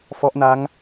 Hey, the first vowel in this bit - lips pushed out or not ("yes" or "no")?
yes